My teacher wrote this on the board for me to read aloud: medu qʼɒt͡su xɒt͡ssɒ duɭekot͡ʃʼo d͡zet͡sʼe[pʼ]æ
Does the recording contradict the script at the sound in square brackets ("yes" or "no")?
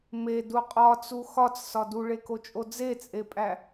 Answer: no